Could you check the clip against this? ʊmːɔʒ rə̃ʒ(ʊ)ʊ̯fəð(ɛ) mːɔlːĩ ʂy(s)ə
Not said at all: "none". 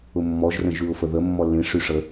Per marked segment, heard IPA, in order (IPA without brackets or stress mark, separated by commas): ʉ, ə, ʂ